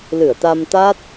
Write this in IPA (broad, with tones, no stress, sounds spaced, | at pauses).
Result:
l ɨ˧˩ ə̯ t̪ a˧ m t̪ a˦˥ t̚